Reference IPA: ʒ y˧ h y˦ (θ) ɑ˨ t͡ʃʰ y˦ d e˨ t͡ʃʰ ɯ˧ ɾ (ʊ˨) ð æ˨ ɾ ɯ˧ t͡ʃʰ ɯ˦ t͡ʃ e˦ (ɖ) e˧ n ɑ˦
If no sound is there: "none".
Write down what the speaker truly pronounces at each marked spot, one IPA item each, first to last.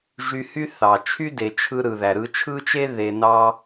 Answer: θ, ɯ˨, ð

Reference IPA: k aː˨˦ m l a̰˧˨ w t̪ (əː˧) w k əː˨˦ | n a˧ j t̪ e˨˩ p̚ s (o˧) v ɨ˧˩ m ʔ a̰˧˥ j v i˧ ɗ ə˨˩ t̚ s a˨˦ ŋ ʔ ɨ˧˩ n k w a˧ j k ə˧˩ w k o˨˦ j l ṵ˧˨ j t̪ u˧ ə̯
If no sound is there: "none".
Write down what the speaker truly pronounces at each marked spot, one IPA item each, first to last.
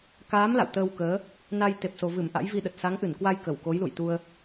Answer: əː˧, o˨˩

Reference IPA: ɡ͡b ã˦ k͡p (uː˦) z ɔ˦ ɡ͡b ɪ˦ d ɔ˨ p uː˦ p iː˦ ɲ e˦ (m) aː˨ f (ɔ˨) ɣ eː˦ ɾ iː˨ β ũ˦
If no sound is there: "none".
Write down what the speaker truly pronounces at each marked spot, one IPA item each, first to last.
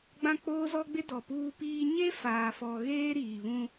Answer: oː˦, f, ɔ˨

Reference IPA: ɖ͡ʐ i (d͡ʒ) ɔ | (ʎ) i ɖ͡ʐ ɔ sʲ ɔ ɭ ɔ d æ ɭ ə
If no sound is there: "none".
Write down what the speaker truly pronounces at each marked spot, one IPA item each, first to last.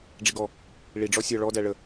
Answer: ɡ, ɭ

